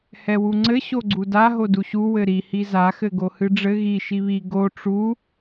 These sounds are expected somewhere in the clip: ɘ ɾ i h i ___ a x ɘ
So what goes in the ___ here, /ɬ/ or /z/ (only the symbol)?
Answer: z